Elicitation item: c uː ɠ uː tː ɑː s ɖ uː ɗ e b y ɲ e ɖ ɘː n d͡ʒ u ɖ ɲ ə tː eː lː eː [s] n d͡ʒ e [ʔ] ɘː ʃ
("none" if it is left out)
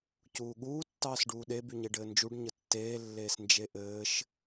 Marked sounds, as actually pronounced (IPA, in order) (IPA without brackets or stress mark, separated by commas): s, ʔ